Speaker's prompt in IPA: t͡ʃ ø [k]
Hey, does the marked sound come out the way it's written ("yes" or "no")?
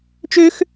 no